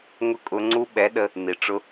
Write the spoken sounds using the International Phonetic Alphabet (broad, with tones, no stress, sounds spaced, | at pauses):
ŋ ʊ˧ kʼ ʊ˨ ŋ͡ǀ u˧ ɓ ɛ˨˦ ɗ ə˧ | n i˨ ʈ͡ʂ ʊ˧